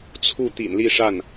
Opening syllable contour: falling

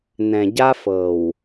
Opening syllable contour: low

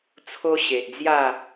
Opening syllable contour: high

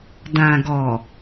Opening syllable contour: low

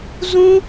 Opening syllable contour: high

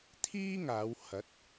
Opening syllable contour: high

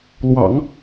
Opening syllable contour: low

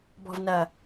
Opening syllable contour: low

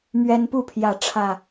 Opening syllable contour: high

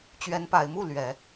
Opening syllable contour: rising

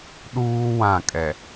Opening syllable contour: high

